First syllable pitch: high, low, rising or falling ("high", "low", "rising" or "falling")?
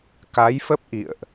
rising